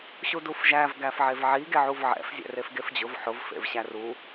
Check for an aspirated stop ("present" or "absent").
absent